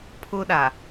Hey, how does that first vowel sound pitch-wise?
high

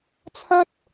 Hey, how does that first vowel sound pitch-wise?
high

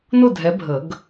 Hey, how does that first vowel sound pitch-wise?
falling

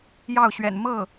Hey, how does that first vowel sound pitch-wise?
falling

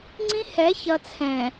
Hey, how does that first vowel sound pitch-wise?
high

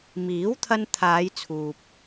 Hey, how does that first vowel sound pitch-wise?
rising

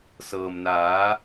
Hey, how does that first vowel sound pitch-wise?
low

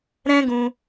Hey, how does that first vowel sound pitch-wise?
high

